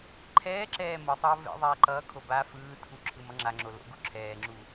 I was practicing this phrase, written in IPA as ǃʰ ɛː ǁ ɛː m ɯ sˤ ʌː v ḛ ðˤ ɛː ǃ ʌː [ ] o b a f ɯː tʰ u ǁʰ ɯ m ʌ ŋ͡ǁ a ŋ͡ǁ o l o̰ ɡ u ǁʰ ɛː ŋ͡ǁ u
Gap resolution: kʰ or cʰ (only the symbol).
kʰ